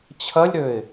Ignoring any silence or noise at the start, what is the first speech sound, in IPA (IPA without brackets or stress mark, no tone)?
t͡ɕʰ